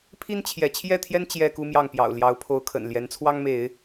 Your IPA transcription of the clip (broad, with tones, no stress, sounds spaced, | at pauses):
pʰ i˦ n t͡ɕʰ j ɛ˨˦ t͡ɕʰ j ɛ˥˨ t̪ʰ j ɛ˦ n t͡ɕ j ɛ˦ k u˦ m j ɑ˥˨ ŋ p j ɑ̰˨˩ ʊ̯ l j ɑ˨˦ ʊ̯ pʰ o˨˦ ʊ̯ kʰ ə̰˨˩ n l j ɛ˨˦ n t͡sʰ w ɑ˦ ŋ m e˨˦ ɪ̯